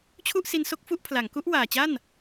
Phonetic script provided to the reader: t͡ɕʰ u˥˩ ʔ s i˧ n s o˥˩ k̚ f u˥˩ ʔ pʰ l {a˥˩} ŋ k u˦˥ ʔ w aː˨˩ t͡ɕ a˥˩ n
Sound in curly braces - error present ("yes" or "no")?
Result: yes